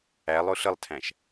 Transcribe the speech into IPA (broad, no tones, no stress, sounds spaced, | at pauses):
æ lˠ ʊ ɬ ə lˠ tʰ æ̃ ʃ